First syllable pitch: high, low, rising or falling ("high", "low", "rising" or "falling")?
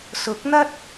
rising